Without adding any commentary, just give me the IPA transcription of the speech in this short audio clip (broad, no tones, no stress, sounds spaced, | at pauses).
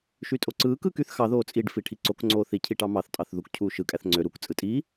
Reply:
ʃ y tʼ o ǀ ɯː k ɯː k y θ x ɑ ð oː t͡sʼ i ɖ f i ʈʰ i ǀ o k ŋ͡ǀ oː θ i cʰ i ʈ ɑ m ɑ θ tʼ ɑ θ ð u k cʰ uː ʃ ɯ kʼ æ θ ŋ͡ǀ ø ɾ u k t͡sʼ ɯ tʼ i